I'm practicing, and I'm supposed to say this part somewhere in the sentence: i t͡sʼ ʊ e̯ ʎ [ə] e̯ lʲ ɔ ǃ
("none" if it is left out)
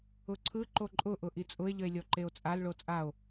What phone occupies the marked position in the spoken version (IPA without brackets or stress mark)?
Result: ə